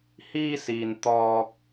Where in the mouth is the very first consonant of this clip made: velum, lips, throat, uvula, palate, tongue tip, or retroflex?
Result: throat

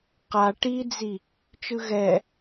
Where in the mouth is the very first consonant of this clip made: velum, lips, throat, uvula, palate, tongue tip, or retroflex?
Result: uvula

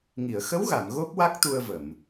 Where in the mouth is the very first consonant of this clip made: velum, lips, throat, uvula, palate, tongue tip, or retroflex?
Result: velum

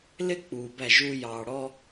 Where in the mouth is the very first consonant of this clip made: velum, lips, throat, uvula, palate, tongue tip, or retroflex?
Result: tongue tip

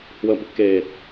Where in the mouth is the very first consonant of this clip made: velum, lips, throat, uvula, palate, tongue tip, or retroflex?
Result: throat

